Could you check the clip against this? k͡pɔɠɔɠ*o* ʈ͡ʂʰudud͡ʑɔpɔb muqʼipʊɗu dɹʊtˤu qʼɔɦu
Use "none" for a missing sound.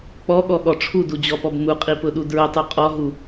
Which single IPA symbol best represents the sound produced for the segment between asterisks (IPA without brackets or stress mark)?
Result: ɔ